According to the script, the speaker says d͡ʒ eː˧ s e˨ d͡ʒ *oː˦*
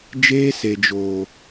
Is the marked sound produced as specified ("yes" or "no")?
no